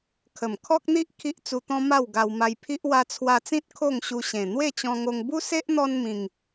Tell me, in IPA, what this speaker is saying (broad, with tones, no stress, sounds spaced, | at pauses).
kʰ ə˨˩ m kʰ ɔ˦ k̚ n̪ i˦ ʔ kʰ i˦ ʔ t͡s u˧ t̪ ɔ̃˦ m a˥˧ w ɡ a˧ w m a˧ j pʰ i˦ ʔ w a˧ t͡sʰ w a˧ t͡s ĩ˦ t̚ kʰ o˥˧ ŋ ɕ u˧ ɕ ẽ˨˩ n̪ w e˥˧ t͡ɕ ɔ̃˧ ŋ o˧ ŋ b u˦ s e˦ ʔ n̪ ɔ˧ n m ĩ˨˩ ŋ